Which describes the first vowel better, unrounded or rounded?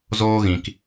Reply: rounded